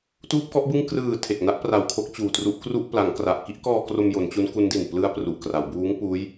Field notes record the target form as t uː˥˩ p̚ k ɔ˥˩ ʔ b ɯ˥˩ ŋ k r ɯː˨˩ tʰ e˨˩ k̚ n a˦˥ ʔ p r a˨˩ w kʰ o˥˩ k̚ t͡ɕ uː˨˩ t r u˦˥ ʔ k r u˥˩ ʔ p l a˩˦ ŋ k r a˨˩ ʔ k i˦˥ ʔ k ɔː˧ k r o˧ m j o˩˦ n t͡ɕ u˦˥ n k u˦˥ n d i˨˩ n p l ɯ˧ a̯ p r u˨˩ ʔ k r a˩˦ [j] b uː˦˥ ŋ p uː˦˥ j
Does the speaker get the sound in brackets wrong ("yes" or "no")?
yes